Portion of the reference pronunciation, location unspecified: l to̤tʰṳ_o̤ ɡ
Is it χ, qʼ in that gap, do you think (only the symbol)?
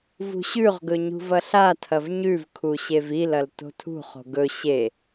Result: χ